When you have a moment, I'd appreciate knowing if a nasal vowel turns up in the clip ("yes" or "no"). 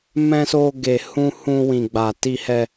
yes